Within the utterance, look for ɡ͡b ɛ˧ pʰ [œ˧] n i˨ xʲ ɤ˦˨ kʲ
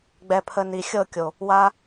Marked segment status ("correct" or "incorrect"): incorrect